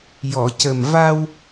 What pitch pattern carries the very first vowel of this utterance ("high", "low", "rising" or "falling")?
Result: low